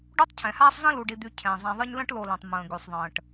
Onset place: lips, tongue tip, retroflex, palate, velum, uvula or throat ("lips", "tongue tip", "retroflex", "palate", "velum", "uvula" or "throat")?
retroflex